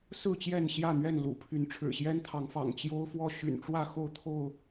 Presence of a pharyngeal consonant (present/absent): absent